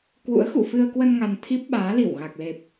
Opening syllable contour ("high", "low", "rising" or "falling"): rising